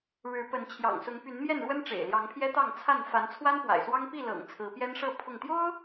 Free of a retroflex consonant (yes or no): no